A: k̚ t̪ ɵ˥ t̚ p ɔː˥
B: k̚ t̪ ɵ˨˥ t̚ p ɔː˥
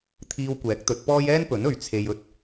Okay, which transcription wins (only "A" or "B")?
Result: B